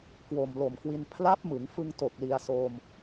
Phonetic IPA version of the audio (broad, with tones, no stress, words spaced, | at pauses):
kwo˨˩mlo˨˩mkwi˧n pʰla˦˥p̚mɯ˩˦ŋfɯ˧ŋto˨˩k̚ li˧a̯soː˧m